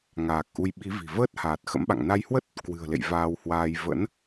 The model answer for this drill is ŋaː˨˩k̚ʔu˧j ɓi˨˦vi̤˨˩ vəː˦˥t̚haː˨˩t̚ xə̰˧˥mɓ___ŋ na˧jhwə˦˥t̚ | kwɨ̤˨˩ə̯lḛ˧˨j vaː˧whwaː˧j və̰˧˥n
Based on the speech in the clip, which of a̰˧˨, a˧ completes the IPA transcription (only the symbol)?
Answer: a̰˧˨